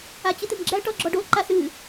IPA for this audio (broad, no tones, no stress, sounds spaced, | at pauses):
a t͡ɕ ɨ t̪ ɨ m ɡ͡ǁ æ ʈ ɔ ɡ͡ǁ ɔ ɖ o ǃ a s ɨ